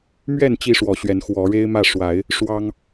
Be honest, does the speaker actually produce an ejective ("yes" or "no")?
no